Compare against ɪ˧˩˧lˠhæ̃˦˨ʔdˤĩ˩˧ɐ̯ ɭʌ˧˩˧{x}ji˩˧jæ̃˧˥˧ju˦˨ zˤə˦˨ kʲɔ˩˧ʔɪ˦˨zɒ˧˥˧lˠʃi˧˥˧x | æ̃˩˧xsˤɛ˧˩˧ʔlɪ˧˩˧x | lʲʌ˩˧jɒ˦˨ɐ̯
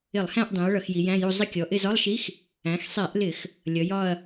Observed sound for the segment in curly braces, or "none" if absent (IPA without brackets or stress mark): x